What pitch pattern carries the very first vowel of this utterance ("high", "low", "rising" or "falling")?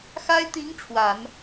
high